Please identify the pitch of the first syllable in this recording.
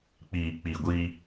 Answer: low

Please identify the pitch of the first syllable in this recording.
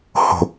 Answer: low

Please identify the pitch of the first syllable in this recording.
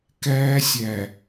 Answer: high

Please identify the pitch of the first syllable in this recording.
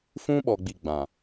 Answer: high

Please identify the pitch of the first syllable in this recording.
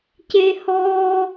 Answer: high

